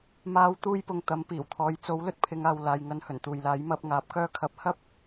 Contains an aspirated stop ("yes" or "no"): yes